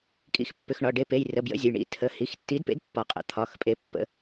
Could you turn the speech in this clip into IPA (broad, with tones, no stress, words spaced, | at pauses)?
kʼḭ˨˥xpːʏ˩˧˩x ɳɒ˩˧˩ ɖe˨˥pe˩˧˩jrə˩˧˩ bjə̰˨˥zʲə˩˧˩j ɳḭ˩˧˩tʰə˩˧˩ hi˩˧˩xtːi˨˥dpḛ˨˥d pːɒ˨˥ qʼə̰˩˧˩t̪ʰɒ˩˧˩xpʼe˨˥ pːə̰˨˥